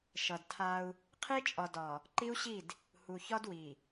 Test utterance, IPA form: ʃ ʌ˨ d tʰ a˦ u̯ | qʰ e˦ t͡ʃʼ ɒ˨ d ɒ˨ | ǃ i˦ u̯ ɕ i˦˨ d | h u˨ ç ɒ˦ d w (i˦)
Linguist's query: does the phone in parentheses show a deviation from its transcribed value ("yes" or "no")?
yes